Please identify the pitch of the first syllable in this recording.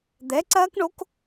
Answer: rising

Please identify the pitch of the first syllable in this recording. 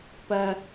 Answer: high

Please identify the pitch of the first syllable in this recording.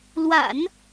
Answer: low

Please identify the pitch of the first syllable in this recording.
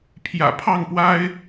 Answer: low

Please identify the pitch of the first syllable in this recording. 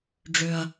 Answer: low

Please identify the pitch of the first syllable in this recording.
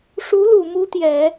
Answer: rising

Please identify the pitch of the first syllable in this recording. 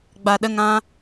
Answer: low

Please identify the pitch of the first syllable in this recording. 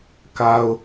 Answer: high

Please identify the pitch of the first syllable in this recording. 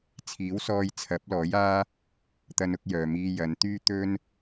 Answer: rising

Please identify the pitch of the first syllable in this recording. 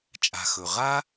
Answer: low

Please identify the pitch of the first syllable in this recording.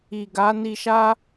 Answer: low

